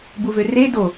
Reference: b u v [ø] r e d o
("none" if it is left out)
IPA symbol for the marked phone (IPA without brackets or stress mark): ø